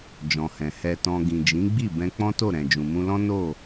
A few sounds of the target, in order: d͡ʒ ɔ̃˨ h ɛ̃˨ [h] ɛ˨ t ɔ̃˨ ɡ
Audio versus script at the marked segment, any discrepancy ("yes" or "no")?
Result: no